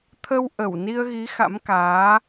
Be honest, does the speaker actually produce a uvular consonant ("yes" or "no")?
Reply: no